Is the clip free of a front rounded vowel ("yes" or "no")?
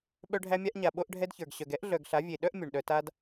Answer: no